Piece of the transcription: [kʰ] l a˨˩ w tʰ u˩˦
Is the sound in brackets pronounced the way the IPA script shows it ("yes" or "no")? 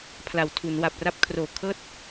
no